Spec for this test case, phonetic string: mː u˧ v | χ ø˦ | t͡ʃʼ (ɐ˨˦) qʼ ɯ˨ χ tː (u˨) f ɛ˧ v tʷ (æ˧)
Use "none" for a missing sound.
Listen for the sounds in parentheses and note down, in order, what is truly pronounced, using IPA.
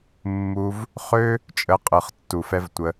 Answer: ə˨˦, u˨, ə˧

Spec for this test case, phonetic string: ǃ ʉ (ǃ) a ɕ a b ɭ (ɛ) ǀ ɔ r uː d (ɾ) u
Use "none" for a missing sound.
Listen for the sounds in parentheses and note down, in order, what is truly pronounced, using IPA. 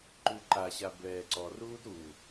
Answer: ǃ, ɛː, ɾ

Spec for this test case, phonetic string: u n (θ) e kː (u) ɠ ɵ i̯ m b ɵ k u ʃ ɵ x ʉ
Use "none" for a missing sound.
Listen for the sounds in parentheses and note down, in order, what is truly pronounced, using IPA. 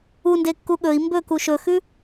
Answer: d, u

